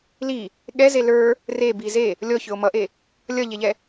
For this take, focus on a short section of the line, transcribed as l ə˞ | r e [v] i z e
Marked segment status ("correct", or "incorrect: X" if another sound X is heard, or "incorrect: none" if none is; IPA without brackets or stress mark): incorrect: b